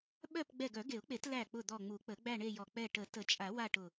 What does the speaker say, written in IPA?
ɓ œ˥˧ p ɡ͡b ɛ˧˩ ɡ œ˨˩˦ ɡ e˨˩˦ ʊ̯ k͡p e˨˩˦ t l æ˧˩ k͡p ʊ˧˩ d̪ ɔ˧˩ ŋ͡m u˨˩˦ k͡p ə˨˩˦ ɡ͡b æ˥˧ ɳ e˥˧ j ɔ˧˩ k͡p ɛ˧˩ ʈ ə˨˩˦ t ə˨˩˦ t͡ʃʼ a˨˩˦ w a˥˧ ʈ ʊ˧˩

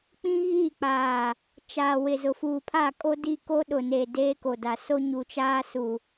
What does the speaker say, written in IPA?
k͡p ĩ˦ ɣ iː˦˨ k͡p aː˨ | t͡ʃ aː˨ w ɪ˨ z ʊ˨ f uː˨ pʰ a˦˨ kʼ o˦ d i˦˨ k o˦ ɗ ʊ˨ n eː˨ d eː˦ k o˨ d a˨ s o˦ ɲ u˨ t͡ʃ aː˦ s u˨

